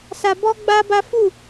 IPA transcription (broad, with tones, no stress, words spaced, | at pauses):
sa˧bɔ˦ɡ͡ba˦ba˦ fu˦˨